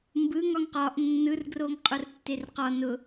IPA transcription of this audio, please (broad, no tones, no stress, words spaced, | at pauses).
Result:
mbɯ ŋɒŋqɒʔ nːɯrɡroŋ qʼʊrtːerqɒ nʊ